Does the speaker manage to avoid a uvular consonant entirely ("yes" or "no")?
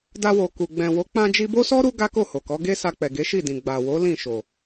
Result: yes